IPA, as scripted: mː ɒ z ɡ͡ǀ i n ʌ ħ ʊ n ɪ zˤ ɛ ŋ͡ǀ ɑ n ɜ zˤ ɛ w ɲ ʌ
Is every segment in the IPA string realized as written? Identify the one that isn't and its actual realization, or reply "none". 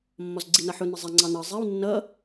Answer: ɲ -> nː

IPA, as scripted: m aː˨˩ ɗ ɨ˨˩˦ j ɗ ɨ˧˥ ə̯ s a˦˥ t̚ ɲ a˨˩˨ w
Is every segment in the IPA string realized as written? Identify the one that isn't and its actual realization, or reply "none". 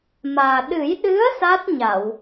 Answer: none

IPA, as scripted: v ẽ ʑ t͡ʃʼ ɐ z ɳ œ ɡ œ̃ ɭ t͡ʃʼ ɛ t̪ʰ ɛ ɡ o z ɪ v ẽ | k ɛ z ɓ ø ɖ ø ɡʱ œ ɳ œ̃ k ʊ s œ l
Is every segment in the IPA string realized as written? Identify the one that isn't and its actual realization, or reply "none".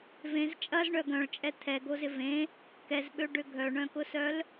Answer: ʑ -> z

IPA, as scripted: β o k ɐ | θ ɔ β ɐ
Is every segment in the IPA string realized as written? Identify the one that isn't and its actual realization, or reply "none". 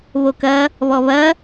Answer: θ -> β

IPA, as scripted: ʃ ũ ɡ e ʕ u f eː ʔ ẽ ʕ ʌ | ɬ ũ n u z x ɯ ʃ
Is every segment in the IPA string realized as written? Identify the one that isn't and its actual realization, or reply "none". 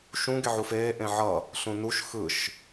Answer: z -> ʃ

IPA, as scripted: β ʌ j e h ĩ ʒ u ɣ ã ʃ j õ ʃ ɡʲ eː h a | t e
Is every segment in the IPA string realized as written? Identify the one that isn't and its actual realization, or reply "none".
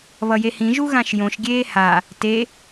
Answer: none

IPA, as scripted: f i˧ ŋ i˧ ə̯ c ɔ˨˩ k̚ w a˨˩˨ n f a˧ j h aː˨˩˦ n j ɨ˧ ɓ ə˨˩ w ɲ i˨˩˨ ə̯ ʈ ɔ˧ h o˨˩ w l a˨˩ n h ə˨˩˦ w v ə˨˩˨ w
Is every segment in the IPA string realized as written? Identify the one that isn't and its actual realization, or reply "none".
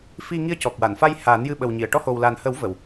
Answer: none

